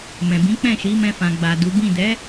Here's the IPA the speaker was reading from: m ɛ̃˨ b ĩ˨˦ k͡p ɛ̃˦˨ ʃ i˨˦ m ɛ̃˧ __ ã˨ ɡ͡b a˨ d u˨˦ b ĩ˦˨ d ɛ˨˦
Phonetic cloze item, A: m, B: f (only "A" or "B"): B